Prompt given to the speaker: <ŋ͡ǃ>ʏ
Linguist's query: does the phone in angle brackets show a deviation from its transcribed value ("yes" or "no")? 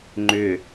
no